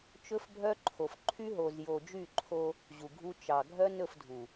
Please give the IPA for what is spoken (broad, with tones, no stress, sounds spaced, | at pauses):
t͡ʃ ɵ˦ f bʱ œ˦ ǃʰ o˨ f ǃʰ y˦ ɦ o˨ z j o˨ d͡ʒ y˦˨ ǃʰ o˦ | ʑ u˨ ɡʱ u˦ t͡ʃ ɑ˨ ɡʱ œ˦ n ɵ˦˨ f dʱ u˨